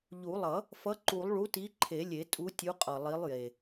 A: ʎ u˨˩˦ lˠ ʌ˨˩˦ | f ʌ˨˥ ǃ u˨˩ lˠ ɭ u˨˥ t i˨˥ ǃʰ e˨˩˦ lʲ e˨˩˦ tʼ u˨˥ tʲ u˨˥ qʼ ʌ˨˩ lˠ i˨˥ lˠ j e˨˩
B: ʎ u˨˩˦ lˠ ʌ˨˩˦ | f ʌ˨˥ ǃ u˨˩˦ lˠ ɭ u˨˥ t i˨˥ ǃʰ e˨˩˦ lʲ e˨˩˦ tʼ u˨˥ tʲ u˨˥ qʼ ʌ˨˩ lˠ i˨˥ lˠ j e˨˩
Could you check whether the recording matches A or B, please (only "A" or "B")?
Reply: B